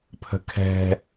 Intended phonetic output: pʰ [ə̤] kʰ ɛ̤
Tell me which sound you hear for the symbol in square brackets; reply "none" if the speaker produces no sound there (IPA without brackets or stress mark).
ə̤